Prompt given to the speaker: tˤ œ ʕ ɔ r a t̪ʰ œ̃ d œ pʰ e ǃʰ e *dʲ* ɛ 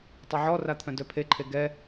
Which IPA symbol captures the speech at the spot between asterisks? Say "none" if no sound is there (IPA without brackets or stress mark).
ɡ